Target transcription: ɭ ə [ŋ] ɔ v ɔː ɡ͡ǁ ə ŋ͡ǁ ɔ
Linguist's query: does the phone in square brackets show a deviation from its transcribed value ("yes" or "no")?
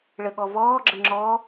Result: yes